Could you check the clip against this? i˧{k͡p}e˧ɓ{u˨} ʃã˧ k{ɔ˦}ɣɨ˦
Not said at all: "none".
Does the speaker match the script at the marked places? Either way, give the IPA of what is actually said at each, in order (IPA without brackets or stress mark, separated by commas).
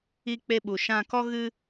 k͡p, u˨, ɔ˦